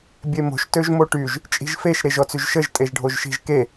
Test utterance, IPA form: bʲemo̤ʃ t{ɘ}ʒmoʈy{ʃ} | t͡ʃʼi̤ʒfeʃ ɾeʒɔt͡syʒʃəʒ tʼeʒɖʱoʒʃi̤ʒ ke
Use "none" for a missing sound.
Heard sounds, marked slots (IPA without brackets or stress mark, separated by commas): ø, ʒ